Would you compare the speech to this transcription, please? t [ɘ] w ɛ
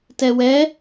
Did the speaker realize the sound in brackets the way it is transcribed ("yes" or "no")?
no